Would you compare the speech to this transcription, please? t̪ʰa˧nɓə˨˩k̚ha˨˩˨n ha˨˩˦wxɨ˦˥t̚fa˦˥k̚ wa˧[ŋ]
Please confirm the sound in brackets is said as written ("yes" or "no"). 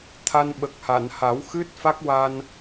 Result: no